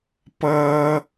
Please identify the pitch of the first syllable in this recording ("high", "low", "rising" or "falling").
high